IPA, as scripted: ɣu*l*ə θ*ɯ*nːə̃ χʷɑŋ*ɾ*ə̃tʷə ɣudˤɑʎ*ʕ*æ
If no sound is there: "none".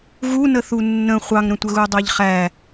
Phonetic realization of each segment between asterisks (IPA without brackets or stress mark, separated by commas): n, u, ɾ, χ